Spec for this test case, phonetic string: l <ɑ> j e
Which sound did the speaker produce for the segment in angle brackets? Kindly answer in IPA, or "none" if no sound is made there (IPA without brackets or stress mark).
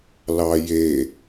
ɑ